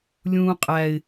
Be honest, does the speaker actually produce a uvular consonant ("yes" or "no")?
yes